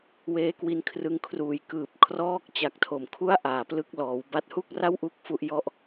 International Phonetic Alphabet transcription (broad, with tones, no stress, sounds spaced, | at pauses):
w eː˧ k w i˧ n kʰ r ɯ˧ ŋ kʰ r uː˨˩ j k ɯː˨˩ p̚ kʰ r ɔː˦˥ k̚ t͡ɕ a˨˩ k̚ tʰ o˨˩ m kʰ u˦˥ a̯ ʔ aː˧ p l ɯ˥˩ k̚ l ɔː˧ w b a˦˥ t̚ h u˥˩ k̚ r a˥˩ w ʔ u˦˥ k̚ f u˦˥ ʔ j ɔ˥˩ ʔ